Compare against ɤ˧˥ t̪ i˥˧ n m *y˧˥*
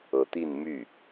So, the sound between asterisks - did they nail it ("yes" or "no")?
no